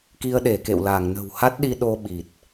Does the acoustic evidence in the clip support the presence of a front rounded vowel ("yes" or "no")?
no